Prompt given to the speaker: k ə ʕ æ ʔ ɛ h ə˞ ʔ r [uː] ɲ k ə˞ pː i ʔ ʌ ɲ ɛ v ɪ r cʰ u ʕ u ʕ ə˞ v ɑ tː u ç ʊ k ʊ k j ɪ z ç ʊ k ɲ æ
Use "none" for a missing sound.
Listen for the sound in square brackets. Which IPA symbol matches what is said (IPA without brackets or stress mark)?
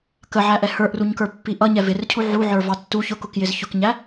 u